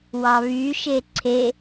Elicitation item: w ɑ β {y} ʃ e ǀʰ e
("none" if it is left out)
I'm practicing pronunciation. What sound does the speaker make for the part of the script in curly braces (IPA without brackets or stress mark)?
y